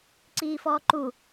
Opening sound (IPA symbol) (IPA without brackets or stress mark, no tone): ǀ